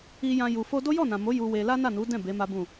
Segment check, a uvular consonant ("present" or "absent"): absent